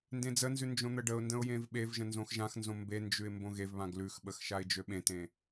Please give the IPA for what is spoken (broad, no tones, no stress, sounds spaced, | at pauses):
n d ẽ d͡z ə n z ʉ n d͡ʒ õ n̪ ə ɖ ə ʊ̯ n d ə̃ ʊ̯ j ẽ v ɓ e v ʒ ə̃ n z õ x ʒ ã x n z õ m b e n d͡ʒ ʉ ɪ̯ m b õ ɣ e v β ã ɡ l ʉ x ɓ ə x ʃ a ɪ̯ d͡ʒ ø ɓ ẽ t ẽ